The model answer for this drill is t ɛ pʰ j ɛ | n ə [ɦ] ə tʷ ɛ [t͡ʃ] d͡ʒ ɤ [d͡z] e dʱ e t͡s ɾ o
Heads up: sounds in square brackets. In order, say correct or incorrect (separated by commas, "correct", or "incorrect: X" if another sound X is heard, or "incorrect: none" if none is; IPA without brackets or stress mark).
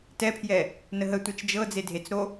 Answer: correct, correct, correct